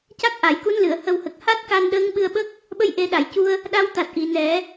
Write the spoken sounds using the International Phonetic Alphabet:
ca˦˥k̚ʔa˨˩˨jku˧˥nlɨ˨˩˨ə̯ hə˨˩whə˨˩k̚ha˦˥t̚ ka˧nɗəː˧˥ŋɓɨ˧ə̯ɓə˦˥k̚ | ɓə˧jʔe˨˩˦ɗa˨˩˨jcu˧ə̯ | ɗa˧wt̪a˨˩t̚ʔi˨˩˨ nɛ˨˩˦

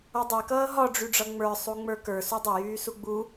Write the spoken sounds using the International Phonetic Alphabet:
ʌdˤɛkʌː ɦɒɖ͡ʐyɖ͡ʐʌ ŋ͡mə˞ sˤuŋ͡mə˞kə˞ sudˤə jyːsuɡ͡bu

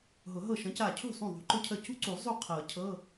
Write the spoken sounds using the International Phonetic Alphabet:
ɦʊ˨˩˦ɦɤ˥˩ ʃə̃˨˦ca˧˩cʰṳ˥˩ sˤũ˥˩ðˤṳ˨˦ǃʊ˥cʰə˥˩ cṳ˥ǀu˨˩˦ zˤu˥˩ qʰɤ˨˩˦cʰɤ˧˥˧

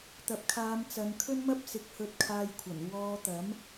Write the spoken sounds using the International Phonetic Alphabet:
t̪ɐ˨p̚kʰaː˨˧m t͡sɐ˨˧nkʰɵ˥nmɐ˥p̚ sɪ˨˥k̚hɵ˧t̚kʰaː˧jkʷʰɐ˨˩n wɔː˧t̪ɐ˨˥m

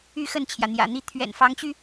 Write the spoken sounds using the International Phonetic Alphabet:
y˥˧xə˥˩nt͡ɕʰjä˩ n̪jä̰˨˩n̪i˥˩ t̪ʰɥɛ̰˨˩n fɑ˧˥ŋt͡ɕy˧

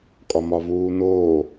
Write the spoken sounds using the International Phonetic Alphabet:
kʼɒmɒvuːnoː

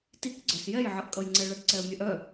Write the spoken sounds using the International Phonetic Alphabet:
tik ɡ͡ǀœsjɛjʕʌʔkʼʌj ŋ͡ǀɛɭɐʈǀɛə̯mʲœʔ œ

